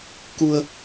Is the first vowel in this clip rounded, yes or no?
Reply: yes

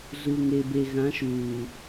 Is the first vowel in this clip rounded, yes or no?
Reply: yes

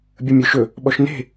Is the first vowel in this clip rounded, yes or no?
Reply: no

